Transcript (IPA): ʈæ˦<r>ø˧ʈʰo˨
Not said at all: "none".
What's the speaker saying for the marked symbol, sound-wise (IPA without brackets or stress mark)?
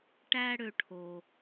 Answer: ɽ